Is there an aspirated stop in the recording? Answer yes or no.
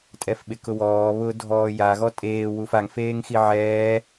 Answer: no